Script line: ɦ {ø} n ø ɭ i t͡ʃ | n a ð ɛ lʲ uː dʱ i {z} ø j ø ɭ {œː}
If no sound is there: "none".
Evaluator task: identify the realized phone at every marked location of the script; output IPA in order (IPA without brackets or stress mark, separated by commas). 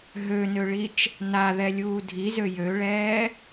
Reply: ø, z, ɛː